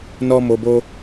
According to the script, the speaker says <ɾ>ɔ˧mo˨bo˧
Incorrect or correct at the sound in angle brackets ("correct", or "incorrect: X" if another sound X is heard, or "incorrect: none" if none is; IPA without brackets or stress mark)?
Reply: incorrect: n